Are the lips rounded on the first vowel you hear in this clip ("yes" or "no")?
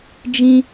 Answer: no